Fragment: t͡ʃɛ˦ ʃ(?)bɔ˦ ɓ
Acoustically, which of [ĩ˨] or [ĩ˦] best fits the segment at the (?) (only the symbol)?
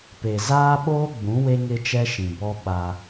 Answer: ĩ˨